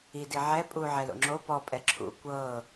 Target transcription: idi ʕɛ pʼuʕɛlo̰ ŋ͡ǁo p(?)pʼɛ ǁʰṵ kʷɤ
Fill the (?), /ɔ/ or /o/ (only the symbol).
ɔ